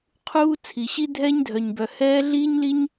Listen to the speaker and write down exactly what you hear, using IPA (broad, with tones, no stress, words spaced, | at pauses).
qʰuː˥ t͡sʰi˩ɕi˥ dʱɛː˥ɲdʱœ˩ɲbœ˩ hɛː˥ ɮiː˥ɲliː˥ɲ